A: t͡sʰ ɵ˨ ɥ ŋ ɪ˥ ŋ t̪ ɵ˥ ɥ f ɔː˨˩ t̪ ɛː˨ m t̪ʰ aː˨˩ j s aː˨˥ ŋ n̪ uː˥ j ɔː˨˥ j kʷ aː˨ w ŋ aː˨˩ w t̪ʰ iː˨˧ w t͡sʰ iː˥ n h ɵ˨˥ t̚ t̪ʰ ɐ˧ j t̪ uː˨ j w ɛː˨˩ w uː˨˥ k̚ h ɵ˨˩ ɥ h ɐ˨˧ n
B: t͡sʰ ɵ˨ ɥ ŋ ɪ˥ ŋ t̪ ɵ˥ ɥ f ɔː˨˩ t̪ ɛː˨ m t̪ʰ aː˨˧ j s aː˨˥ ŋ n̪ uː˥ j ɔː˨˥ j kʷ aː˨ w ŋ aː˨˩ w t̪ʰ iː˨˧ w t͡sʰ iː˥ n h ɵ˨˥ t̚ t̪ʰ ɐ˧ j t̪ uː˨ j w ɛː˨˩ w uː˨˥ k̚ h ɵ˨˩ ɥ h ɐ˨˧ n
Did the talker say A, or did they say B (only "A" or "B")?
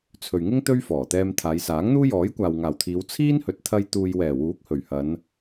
B